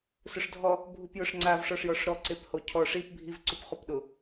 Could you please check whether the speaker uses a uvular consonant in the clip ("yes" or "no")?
yes